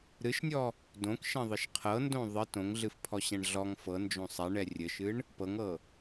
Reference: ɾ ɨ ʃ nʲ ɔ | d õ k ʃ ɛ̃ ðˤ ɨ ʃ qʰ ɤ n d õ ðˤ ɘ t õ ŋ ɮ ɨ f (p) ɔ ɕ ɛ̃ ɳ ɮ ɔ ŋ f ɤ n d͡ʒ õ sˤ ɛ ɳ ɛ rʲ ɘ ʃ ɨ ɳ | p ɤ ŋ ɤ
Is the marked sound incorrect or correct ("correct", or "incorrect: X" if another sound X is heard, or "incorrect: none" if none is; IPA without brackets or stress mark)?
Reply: incorrect: pʰ